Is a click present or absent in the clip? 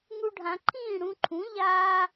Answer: present